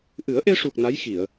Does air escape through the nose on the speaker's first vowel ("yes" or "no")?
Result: no